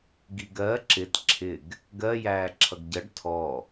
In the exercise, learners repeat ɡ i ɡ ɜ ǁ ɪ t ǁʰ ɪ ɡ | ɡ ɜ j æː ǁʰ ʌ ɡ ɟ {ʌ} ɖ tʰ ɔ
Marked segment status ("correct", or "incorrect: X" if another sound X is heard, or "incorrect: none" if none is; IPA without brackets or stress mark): correct